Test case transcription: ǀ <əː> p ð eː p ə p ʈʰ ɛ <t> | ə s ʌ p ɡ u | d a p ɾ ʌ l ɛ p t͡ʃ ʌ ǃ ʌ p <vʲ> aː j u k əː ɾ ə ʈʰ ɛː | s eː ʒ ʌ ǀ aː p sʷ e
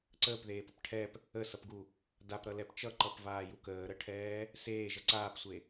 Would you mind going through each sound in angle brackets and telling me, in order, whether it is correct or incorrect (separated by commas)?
correct, incorrect, incorrect